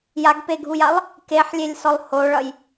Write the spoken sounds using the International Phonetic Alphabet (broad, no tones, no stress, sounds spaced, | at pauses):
j a ɡ p e ɡʱ u j a lˠ | k e ħ lʲ e lʲ s ɔ lˠ h o ɭ ʌ j